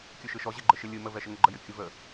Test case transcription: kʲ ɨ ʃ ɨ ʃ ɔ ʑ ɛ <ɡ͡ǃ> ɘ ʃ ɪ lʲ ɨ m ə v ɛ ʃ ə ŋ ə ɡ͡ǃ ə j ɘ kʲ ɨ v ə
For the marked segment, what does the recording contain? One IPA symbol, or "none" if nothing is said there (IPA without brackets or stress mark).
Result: ɡ͡ǃ